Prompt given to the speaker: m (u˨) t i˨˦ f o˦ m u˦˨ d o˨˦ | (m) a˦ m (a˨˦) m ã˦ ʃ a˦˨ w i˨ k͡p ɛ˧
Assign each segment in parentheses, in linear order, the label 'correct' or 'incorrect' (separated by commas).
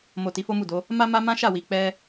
incorrect, correct, incorrect